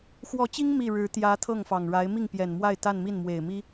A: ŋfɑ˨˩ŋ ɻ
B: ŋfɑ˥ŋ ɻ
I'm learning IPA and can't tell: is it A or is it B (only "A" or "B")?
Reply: A